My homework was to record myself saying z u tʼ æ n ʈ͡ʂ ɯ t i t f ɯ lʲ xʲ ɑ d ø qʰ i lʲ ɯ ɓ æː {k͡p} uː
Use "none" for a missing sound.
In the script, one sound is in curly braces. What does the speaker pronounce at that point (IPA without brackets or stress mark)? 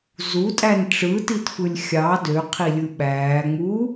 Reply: ŋ͡m